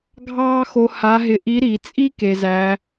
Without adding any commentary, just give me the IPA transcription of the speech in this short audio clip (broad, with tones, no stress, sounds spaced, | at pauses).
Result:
ɡʱ ɑː˥ x o˧ h a˧˥ ɦ ɪ˧ ʔ i˧˥ ɾ i˩˧ t͡sʼ i˥ k e˩ z æ˩˧